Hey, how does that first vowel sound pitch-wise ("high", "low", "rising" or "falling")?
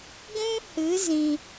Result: high